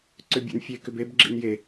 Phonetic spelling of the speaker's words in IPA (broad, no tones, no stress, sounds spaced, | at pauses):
ǀ ʏ bʲ ḛ n fʲ e k ʏ b e b ɡ͡ǁ ḭ n j e